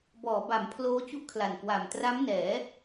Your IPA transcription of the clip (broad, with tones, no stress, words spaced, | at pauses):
bɔː˩˦ba˩˦m pʰloː˦˥ t͡ɕu˥˩ʔkʰla˨˩n kwa˨˩m tra˦˥mnɛː˩˦